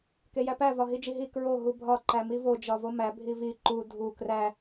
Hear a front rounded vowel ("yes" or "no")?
no